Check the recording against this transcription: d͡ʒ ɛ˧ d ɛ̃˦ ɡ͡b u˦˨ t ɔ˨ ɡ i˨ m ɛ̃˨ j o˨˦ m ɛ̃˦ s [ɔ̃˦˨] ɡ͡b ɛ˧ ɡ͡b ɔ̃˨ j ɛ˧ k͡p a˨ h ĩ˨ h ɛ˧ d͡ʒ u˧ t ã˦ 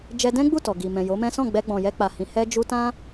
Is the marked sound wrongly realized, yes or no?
no